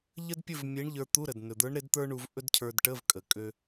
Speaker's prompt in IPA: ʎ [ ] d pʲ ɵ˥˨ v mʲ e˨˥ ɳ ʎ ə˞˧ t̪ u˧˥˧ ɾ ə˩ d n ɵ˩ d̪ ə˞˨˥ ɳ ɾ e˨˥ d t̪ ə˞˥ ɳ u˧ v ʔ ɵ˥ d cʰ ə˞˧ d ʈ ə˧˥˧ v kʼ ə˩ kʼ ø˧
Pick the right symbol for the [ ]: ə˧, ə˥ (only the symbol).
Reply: ə˥